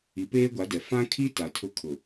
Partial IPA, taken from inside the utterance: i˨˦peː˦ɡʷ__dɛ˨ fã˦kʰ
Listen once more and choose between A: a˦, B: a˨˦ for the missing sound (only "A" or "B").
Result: B